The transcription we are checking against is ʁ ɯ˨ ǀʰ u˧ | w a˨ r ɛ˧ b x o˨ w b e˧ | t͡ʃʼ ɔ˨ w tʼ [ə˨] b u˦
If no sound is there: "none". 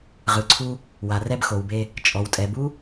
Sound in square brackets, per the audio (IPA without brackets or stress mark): ɛ˨